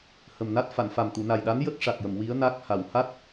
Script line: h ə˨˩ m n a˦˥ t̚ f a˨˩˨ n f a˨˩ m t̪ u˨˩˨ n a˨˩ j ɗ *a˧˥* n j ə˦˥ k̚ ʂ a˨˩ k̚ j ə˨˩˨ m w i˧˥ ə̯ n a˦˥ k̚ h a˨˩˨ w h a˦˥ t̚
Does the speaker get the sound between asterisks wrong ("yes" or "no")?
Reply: no